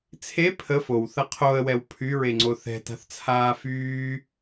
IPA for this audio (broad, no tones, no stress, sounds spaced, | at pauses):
t͡sʰ e pʰ ə f o w θ ɐ qʰ o ə̯ w ɛ w pʰ y ɹ e ŋ͡ǀ o θ ɛ̤ t a̤ θ t͡sʰ aː f yː